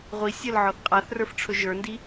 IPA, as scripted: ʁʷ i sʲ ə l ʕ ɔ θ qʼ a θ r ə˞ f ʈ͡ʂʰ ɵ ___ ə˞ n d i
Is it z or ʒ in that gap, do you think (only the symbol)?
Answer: ʒ